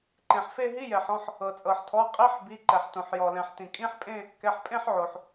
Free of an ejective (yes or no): no